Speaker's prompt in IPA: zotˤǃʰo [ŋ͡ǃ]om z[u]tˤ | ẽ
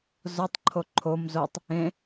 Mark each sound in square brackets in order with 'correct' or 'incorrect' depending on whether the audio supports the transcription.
incorrect, incorrect

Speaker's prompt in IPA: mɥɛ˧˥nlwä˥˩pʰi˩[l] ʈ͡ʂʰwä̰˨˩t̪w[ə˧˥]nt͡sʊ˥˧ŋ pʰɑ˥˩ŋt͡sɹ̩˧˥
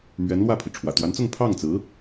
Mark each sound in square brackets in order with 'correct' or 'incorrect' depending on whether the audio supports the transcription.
incorrect, incorrect

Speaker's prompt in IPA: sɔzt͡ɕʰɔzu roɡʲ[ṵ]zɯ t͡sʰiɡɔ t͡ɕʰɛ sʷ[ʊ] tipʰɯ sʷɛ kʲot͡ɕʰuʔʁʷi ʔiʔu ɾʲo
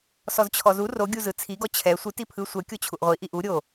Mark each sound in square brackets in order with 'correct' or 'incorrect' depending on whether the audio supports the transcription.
incorrect, incorrect

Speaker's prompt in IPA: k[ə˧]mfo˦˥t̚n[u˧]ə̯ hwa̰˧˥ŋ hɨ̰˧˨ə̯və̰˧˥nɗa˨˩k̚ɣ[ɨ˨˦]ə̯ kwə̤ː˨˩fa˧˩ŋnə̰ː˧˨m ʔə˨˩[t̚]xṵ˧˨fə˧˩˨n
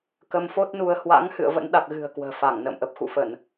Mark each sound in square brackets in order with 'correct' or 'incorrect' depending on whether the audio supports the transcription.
correct, correct, incorrect, incorrect

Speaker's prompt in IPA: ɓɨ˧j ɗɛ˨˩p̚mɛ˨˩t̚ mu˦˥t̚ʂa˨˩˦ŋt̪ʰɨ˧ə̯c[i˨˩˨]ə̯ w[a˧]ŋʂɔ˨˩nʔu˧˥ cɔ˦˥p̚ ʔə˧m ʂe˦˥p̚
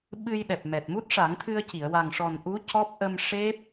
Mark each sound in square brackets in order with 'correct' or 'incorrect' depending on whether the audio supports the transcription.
correct, incorrect

